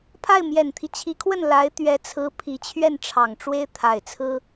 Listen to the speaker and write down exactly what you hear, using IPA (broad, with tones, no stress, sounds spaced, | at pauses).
pʰ a˥˩ ɪ̯ m j ɛ˨˩ n t̪ʰ i˦ t͡ɕʰ i˧˥ kʰ w ə˥˩ n l a˧˥ ɪ̯ t̪ ɥ ɛ˧˥ t͡sʰ ɹ̩˧˥ pʰ i˧˥ t͡ɕʰ ɥ ɛ˥˩ n ʈ͡ʂʰ ɑ˨˩ ŋ ʈ͡ʂ w e˥ ɪ̯ t̪ʰ a˨˩ ɪ̯ t͡sʰ ɹ̩˥